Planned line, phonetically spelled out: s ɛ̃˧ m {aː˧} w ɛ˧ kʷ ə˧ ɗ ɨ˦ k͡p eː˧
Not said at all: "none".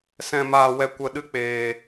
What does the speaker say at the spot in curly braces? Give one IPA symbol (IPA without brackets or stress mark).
aː˧